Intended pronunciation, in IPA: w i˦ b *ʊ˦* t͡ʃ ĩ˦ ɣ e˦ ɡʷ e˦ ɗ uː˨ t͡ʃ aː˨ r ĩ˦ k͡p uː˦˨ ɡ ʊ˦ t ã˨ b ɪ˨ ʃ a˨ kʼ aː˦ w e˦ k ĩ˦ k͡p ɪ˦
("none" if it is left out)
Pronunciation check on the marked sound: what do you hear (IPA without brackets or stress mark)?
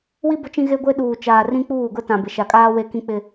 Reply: ʊ˦